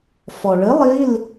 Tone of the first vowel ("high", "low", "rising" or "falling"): low